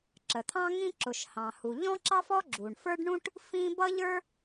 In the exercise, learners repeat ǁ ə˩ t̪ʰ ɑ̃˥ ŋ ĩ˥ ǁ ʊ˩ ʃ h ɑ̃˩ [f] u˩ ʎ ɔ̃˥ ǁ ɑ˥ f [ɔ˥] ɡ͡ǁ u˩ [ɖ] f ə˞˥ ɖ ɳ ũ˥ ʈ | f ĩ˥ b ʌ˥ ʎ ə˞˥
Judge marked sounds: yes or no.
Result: no, yes, no

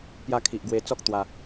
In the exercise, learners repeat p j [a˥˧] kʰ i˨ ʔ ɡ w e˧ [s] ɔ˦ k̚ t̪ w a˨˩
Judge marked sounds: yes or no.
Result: yes, no

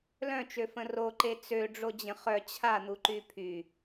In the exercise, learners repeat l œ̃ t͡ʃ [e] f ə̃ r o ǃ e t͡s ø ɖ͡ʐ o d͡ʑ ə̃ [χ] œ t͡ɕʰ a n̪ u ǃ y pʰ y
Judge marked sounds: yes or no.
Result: no, yes

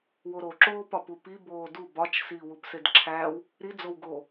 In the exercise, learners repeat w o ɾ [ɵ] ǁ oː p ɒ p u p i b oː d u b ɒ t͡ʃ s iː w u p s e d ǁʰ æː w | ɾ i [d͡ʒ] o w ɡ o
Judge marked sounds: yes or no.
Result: no, no

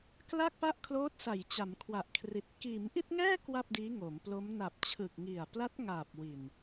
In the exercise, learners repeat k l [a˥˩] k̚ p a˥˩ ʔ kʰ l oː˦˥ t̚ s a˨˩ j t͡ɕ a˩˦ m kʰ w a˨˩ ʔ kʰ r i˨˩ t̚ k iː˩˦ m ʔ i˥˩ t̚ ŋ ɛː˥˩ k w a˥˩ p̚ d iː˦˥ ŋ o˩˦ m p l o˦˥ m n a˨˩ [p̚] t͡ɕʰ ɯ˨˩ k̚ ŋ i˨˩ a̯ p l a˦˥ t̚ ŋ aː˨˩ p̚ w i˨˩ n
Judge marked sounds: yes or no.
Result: yes, yes

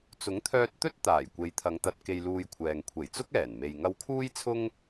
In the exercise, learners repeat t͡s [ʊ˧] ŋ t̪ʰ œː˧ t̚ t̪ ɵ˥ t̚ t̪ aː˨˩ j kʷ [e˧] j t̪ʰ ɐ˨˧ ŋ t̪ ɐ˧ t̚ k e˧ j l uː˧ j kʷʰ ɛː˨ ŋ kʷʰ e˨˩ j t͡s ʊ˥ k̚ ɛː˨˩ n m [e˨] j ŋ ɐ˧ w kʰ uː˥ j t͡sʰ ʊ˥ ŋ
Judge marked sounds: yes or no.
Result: no, no, yes

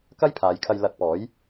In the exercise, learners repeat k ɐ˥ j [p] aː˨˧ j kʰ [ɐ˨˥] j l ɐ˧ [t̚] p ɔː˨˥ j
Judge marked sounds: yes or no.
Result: no, no, yes

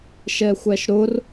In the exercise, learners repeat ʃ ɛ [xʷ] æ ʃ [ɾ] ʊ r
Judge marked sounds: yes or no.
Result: yes, yes

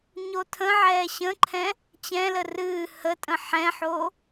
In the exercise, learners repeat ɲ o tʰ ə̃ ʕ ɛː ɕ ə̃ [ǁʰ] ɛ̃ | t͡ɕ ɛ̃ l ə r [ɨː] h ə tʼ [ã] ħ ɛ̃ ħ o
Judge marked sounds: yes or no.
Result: no, yes, no

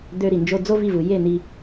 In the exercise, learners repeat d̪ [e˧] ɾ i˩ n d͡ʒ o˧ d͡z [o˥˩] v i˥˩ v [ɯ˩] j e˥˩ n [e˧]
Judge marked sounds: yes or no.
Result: no, no, yes, no

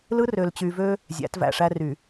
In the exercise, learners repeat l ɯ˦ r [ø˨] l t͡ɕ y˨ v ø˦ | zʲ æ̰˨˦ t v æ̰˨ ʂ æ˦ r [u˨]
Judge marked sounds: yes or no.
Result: yes, no

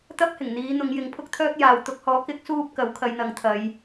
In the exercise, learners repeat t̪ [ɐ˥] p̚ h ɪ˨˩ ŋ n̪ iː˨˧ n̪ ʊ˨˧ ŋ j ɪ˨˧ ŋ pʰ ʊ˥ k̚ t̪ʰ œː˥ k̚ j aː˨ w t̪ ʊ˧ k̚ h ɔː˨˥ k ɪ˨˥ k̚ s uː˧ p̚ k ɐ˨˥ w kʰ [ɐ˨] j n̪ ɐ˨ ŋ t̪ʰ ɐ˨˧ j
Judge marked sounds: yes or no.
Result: yes, no

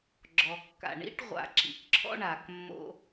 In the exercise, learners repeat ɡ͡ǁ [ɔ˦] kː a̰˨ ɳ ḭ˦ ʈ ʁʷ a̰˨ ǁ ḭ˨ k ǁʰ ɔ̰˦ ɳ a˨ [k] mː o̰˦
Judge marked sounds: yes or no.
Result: no, yes

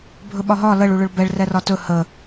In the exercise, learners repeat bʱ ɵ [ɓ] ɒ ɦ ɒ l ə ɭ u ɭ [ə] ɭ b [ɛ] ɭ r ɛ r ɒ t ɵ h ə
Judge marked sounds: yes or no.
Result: yes, no, yes

